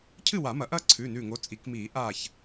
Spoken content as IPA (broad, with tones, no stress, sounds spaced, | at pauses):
cʰ ɨ˥˨ w a˨˩˦ m ɐ˨˩˦ ʔ ɐː˥˨ ǀʰ ʉː˩˧˩ n ʉː˧˩ ŋ o˨˦ t͡sʼ i˨˩˦ k m iː˨˩˦ ʔ aː˧˩ ç